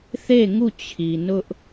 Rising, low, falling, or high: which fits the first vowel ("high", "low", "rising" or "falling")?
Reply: falling